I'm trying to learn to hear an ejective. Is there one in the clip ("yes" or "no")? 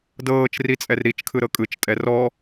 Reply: yes